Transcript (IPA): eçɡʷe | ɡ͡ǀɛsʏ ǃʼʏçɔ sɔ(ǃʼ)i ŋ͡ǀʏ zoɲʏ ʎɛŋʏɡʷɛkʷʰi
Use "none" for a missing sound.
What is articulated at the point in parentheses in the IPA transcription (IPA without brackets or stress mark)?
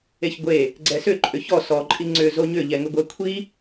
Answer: ǃʼ